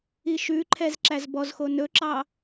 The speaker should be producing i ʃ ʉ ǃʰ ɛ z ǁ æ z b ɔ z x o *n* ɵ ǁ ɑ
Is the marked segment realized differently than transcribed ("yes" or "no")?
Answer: no